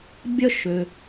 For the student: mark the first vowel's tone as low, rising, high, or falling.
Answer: high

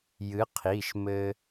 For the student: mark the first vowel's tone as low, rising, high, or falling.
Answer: rising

